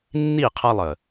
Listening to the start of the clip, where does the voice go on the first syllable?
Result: falling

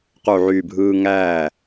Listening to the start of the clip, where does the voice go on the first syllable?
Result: low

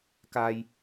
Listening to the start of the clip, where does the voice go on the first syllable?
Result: high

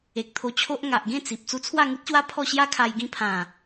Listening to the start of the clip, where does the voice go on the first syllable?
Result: low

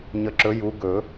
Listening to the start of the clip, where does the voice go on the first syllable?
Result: rising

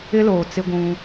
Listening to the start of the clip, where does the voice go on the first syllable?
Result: high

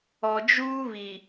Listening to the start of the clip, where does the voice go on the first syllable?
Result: low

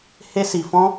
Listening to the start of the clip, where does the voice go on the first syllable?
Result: high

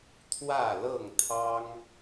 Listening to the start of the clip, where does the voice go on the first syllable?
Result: falling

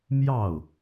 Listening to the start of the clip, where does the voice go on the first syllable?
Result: falling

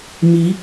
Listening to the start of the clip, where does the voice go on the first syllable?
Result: rising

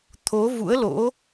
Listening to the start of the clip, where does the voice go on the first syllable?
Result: rising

